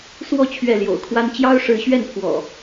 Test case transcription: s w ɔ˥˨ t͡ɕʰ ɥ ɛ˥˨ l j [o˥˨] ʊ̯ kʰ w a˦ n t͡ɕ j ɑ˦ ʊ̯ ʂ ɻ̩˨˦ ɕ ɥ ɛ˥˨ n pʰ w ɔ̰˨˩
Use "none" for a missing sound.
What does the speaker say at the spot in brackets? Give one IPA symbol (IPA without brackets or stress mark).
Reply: o̰˨˩